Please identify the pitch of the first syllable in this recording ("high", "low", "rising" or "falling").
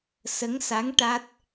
rising